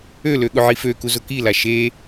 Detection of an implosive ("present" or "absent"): present